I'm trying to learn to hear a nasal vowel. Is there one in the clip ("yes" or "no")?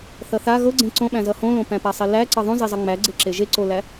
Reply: yes